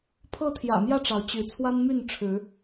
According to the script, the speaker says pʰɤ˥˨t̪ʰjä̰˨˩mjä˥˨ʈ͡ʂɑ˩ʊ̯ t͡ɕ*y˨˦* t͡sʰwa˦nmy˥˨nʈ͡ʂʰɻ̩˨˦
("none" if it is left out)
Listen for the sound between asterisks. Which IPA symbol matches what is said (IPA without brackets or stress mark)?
y˨˦